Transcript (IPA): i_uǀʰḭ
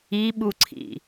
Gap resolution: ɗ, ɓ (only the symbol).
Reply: ɓ